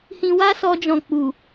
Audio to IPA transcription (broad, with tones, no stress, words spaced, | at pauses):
hĩ˧wa˦sɔ˧d͡ʒɔ̃˨ k͡pu˨